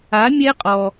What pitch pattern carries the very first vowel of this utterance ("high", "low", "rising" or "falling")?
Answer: rising